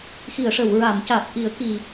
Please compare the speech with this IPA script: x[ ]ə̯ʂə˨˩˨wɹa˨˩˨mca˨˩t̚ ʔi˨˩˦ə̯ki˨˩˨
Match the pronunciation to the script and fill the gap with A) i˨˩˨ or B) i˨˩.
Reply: A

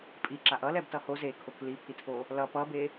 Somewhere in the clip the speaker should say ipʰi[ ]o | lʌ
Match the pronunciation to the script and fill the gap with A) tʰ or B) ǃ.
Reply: A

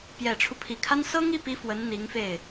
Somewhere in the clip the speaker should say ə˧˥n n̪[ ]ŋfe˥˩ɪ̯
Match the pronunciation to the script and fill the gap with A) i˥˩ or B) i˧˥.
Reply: B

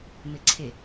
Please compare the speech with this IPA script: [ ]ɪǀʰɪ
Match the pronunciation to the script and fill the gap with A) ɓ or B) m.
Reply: B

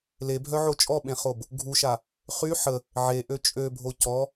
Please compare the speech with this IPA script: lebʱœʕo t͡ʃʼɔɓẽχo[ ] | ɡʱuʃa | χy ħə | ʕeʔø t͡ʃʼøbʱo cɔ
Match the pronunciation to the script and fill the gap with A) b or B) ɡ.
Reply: A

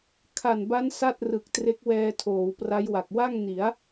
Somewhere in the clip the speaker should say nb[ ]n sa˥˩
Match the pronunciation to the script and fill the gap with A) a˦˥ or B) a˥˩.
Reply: A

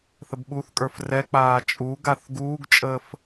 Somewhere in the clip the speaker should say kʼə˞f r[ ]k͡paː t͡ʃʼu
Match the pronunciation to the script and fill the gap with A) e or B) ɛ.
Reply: B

